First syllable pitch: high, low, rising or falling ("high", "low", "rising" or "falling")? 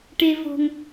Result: low